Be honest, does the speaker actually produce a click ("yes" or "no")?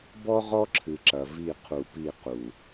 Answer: yes